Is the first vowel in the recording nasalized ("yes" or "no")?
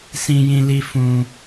yes